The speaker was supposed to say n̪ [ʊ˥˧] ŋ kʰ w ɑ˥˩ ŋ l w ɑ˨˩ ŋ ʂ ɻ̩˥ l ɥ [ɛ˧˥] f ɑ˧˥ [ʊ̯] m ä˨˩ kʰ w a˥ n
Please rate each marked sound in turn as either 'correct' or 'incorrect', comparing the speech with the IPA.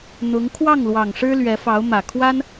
incorrect, correct, correct

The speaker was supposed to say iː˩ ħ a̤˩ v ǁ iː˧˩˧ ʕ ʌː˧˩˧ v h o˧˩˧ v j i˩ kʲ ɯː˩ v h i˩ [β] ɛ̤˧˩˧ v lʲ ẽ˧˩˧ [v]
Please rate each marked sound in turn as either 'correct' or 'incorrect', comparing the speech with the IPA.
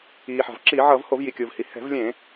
incorrect, incorrect

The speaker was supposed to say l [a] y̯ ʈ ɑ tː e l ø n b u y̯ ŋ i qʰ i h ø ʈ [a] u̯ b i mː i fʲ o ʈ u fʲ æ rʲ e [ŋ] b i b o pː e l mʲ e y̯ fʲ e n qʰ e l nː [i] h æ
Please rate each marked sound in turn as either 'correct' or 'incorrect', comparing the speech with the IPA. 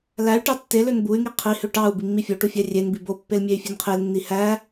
incorrect, incorrect, incorrect, correct

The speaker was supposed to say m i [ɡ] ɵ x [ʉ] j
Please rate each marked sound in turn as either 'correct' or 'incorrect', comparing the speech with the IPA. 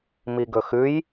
correct, correct

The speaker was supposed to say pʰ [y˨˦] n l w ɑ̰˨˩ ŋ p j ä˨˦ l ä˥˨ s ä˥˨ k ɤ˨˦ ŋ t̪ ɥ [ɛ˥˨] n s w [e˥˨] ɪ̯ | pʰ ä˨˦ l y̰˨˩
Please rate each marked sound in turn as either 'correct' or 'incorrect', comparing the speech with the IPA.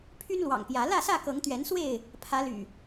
incorrect, incorrect, correct

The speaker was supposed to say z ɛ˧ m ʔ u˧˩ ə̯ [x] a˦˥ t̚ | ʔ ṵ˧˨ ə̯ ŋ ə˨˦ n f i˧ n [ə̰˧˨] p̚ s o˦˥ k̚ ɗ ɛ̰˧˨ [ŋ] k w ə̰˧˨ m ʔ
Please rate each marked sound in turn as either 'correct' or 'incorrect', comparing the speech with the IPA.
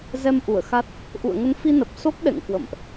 correct, incorrect, correct

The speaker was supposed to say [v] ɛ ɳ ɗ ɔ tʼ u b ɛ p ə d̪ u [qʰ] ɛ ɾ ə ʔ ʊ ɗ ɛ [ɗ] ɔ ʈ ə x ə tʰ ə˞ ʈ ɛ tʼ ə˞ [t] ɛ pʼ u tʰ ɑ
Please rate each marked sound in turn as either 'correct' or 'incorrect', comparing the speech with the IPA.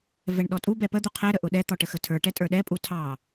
correct, correct, incorrect, incorrect

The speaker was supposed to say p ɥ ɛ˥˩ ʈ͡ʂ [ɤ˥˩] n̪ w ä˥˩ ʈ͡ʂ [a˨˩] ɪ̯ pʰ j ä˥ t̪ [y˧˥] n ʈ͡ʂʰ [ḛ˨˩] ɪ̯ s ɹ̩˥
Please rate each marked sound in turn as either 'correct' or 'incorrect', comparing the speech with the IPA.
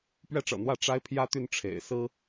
incorrect, incorrect, incorrect, correct

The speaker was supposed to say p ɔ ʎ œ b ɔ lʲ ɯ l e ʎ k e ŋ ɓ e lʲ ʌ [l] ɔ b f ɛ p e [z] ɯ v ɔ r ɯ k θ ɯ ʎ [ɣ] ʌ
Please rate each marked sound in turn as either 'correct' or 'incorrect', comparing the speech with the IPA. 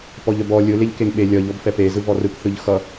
incorrect, correct, incorrect

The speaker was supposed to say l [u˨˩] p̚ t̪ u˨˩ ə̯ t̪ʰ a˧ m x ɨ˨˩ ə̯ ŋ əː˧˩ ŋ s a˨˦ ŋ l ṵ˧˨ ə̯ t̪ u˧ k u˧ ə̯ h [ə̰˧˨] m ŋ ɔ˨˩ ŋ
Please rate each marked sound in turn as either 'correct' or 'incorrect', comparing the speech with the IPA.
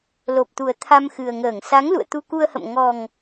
incorrect, correct

